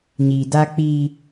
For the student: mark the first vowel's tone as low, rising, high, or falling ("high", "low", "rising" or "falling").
low